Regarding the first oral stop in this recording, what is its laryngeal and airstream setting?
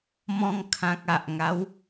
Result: aspirated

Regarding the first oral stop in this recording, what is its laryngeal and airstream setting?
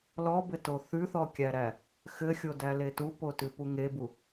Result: plain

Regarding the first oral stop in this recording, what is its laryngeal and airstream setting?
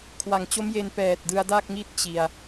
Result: aspirated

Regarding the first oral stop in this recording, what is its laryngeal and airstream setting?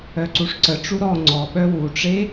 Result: click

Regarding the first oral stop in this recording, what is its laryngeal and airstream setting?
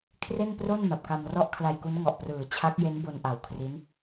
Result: aspirated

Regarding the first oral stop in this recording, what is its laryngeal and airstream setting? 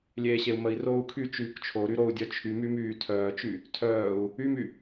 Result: aspirated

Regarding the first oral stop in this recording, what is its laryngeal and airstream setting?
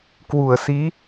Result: plain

